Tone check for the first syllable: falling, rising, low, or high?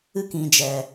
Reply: high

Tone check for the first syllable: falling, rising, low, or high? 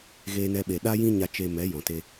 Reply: high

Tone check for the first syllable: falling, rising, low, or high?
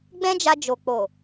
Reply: high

